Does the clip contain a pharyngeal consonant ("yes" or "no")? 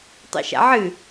yes